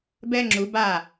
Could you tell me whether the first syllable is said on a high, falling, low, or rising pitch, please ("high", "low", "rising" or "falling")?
high